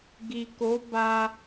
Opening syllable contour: low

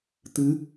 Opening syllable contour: rising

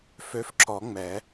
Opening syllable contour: rising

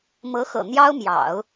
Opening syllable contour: rising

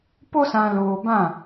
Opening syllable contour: high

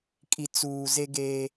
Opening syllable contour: low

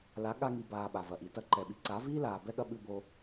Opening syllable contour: rising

